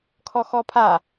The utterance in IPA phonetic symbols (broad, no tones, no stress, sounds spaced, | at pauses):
kʰ ɔ x ɔ pʰ a